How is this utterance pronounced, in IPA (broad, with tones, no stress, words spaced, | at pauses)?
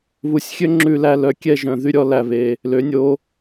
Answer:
βu˧sʲxʲø˥ ŋ͡ǁʉ˧læ˧ lœ˧kʲɛ˥˧ʒœ̃˧ ðy˧ɾʲɔ˩˧ læ˧βe˧ | lø˩˧nʲo˩˧